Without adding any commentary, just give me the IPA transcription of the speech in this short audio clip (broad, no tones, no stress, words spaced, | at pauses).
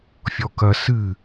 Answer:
fʲɔkɐ sɨ